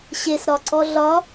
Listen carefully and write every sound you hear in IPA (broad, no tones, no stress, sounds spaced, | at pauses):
ɕ e s ɾ ɒ ǀ ɔ ɮ ɒ